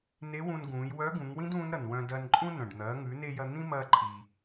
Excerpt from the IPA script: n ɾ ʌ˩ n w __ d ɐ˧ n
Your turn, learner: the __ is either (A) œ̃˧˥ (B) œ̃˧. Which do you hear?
B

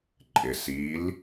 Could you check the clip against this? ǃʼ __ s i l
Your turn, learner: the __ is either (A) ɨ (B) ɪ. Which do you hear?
B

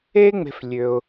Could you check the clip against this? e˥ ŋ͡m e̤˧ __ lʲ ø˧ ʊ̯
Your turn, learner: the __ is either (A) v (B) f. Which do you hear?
B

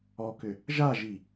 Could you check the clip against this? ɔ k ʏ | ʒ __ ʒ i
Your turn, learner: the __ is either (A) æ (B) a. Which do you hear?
B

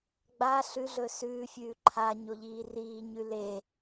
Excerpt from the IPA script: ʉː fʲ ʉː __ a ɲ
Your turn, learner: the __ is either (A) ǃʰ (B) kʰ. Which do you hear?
A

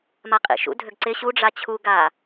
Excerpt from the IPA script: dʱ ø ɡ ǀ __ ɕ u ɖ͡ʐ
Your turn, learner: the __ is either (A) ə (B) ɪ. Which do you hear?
B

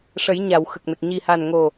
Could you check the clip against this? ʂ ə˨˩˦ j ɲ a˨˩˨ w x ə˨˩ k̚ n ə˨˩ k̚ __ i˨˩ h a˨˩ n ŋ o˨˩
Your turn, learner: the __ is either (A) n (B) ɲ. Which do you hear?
B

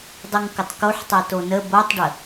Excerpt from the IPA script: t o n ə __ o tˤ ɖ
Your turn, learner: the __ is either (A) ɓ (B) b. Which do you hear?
B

